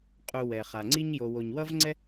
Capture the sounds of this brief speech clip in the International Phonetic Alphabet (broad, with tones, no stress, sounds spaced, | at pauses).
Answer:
qʼ u˨ w ɛ˩ χ a˩ ŋ͡ǀ i˦ ɲ j o˨ w o˨ ɲ w ʌ˥ v ŋ͡ǀ ɛ˥